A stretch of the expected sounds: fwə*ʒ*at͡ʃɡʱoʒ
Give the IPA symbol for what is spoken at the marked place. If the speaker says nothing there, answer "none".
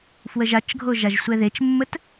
ʒ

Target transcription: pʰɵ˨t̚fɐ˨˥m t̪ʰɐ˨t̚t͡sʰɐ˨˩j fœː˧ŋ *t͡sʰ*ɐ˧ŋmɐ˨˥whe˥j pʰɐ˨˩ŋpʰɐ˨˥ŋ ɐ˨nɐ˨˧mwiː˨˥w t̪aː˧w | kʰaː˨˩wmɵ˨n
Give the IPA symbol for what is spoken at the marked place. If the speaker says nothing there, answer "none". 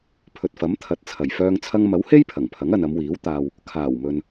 t͡sʰ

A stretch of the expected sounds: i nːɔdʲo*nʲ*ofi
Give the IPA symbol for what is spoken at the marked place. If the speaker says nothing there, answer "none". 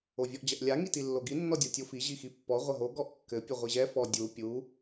tʲ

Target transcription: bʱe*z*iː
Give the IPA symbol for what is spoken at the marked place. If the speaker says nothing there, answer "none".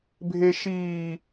ʃ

